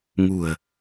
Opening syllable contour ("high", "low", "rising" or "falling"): low